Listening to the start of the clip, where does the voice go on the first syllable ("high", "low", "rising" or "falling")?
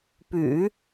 low